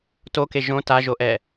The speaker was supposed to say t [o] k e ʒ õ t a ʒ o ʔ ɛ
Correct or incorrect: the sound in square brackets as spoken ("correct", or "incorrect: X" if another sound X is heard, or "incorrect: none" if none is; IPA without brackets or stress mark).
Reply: correct